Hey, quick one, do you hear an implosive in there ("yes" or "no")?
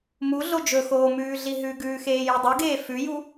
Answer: no